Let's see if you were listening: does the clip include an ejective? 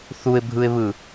no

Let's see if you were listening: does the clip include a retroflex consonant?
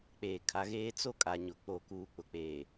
no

